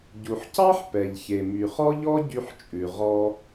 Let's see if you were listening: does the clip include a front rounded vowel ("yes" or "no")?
yes